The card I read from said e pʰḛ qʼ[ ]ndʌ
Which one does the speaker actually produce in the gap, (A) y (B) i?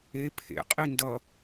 B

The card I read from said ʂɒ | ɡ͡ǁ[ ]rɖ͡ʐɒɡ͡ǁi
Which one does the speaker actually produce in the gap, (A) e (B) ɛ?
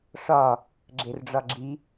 A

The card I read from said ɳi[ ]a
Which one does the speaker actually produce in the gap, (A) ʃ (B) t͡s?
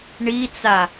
B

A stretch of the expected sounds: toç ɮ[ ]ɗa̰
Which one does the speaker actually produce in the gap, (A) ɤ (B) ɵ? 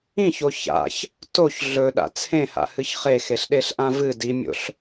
B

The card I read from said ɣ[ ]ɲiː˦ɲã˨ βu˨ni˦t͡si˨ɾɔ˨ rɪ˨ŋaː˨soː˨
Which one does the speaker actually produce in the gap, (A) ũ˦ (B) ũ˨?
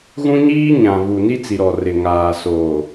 A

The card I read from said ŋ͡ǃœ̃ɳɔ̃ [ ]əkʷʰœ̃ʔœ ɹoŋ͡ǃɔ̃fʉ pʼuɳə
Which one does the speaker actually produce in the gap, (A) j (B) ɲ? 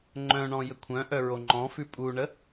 A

